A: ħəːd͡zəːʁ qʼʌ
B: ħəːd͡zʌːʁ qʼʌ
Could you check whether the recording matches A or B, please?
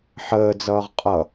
B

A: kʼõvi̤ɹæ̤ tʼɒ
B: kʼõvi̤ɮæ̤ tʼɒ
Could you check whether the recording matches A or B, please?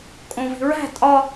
A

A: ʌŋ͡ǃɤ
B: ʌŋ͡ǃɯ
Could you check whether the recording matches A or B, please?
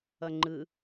B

